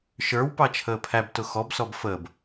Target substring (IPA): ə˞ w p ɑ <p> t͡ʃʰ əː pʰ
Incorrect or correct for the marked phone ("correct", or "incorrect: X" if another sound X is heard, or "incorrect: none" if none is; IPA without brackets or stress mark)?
incorrect: none